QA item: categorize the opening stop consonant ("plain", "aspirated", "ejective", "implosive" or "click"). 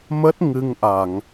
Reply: plain